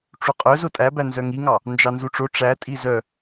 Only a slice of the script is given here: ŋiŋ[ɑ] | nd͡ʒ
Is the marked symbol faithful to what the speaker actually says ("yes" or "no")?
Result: yes